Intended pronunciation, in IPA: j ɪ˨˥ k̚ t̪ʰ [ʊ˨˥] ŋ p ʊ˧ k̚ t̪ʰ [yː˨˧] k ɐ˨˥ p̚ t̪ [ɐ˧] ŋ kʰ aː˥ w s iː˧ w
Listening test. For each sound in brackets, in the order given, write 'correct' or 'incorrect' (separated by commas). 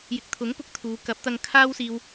correct, incorrect, correct